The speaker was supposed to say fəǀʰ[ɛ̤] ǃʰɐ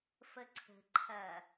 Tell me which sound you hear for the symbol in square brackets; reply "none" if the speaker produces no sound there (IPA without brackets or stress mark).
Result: ə̤